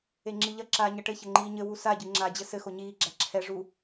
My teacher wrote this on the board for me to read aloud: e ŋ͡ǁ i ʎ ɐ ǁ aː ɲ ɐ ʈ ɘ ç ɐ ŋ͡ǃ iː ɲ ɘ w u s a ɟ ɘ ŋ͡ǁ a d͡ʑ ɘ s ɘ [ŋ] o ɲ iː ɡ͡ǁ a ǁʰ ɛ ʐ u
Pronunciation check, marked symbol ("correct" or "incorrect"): incorrect